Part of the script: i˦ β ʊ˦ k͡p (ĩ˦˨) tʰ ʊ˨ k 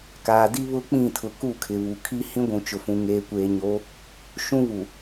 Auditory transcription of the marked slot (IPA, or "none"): ĩ˦˨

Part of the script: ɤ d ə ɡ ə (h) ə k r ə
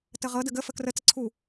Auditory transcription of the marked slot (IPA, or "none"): f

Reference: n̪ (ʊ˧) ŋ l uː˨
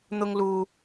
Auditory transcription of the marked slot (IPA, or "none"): ʊ˧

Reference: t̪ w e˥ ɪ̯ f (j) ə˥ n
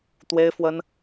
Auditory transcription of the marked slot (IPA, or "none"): w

